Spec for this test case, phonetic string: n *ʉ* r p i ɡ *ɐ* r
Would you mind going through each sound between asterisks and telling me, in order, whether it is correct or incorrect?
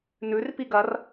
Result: correct, correct

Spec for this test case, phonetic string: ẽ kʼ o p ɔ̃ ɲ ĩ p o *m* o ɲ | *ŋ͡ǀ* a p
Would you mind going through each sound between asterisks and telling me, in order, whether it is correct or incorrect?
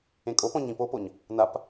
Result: incorrect, incorrect

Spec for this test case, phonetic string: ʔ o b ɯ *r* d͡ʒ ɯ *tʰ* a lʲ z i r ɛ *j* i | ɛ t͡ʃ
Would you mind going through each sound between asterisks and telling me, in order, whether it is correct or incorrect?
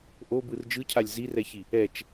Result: correct, incorrect, incorrect

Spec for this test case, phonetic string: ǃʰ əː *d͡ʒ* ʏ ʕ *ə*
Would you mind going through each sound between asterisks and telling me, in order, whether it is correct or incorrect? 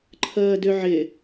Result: incorrect, incorrect

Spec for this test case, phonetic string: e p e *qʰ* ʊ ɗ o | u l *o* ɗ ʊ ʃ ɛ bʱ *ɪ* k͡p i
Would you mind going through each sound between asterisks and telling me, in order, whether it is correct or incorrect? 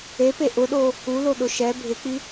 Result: incorrect, correct, correct

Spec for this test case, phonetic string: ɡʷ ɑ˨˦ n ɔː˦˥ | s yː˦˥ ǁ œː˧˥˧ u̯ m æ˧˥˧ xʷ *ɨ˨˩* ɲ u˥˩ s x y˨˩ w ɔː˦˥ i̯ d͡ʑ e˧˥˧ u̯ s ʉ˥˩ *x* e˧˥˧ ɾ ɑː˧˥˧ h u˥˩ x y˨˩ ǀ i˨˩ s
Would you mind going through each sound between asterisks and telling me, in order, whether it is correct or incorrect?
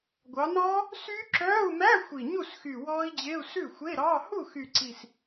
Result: incorrect, incorrect

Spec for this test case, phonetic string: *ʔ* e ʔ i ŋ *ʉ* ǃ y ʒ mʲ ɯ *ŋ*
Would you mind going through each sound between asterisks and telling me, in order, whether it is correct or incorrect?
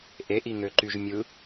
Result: correct, incorrect, incorrect

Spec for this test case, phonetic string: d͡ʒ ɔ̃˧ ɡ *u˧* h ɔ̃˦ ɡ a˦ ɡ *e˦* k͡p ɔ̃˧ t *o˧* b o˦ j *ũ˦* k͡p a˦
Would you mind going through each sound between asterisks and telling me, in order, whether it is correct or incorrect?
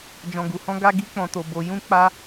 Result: correct, incorrect, correct, correct

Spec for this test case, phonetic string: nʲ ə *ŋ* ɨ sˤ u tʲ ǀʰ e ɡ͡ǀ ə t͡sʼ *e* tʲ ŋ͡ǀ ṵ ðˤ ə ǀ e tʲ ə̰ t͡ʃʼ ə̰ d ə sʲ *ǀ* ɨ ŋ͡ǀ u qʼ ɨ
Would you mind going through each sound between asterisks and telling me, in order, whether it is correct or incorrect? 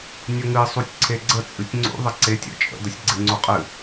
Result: correct, incorrect, incorrect

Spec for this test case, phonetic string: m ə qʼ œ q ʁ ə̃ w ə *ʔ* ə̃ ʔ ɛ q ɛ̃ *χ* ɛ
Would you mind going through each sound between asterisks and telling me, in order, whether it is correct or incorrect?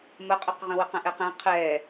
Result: incorrect, incorrect

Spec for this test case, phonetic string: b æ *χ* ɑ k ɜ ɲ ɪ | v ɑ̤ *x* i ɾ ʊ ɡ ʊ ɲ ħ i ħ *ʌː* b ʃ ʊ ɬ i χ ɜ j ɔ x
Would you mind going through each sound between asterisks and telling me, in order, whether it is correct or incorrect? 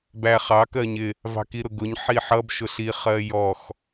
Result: correct, incorrect, incorrect

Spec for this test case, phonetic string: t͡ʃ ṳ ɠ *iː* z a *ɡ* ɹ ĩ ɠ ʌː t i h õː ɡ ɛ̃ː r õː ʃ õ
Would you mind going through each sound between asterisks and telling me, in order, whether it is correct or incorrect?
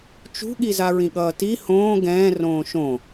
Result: incorrect, incorrect

